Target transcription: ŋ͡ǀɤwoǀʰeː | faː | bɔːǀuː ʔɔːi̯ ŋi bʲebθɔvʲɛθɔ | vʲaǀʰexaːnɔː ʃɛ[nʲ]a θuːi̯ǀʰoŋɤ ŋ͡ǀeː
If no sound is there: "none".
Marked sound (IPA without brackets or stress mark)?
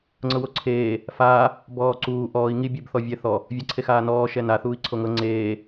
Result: n